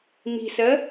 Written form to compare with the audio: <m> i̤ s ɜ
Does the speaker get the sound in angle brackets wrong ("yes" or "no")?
no